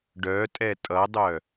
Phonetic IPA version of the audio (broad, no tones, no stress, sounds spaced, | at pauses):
ɖ œ tʼ ɛ tʼ ʌ dˤ œ